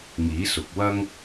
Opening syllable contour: rising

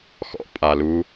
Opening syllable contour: high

